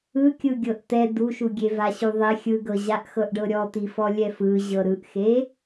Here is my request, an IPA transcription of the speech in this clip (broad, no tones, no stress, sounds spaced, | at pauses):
ɯ kʲ ɯ ɡʲ ɤ ʔ t̪ ɛ d̪ u ʃ u ɡʲ e v a ɕ u ðˤ e xʲ ɯ ɡ ɤ ʑ a ʔ x ɤ ʔ ɖ ɤ ɾʲ ɔ t̪ i f ɔ lʲ ɛ f ɯ ʑ ɤ ɾ ɯ ʔ x e